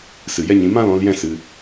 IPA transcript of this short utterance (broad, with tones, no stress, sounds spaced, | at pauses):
s ɨ˨ j ɛ˦ ɲ ĩ˧ m ã˦ l ɔ̃˧ l j ɛ̃˦ s ɨ˧